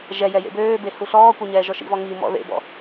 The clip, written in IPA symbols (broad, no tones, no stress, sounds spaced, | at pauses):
ʒ ɛ j ɛ j ḛ b øː b e h u ɬ ɔː kʷ ɛ ɲ ɛː ʒ ɔ ʃ ḭ v ɔ ŋ i m ɔ̰ ð ḛ b ɔ̰